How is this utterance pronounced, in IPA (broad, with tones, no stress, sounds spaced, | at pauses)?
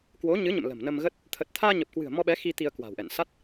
k w o˨˦ ɲ ɨ˨˦ ɲ ə̰˧˨ m l ə̤˨˩ m n ə˧ m ɣ ə˦˥ t̚ | t̪ʰ ə˨˩ t̚ t̪ʰ aː˧ ɲ ə˨˩ p̚ k w ɨ̤˨˩ ə̯ m ɔ˧ ɓ ɛ˨˦ x i˧ t̪ i˧ ə̯ k w a̤˨˩ w ʔ ɛ̰˧˨ n s a˦˥ t̚